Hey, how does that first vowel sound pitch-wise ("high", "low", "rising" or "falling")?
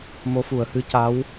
rising